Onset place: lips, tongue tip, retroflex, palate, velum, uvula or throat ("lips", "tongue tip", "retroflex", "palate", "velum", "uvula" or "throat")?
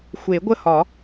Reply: velum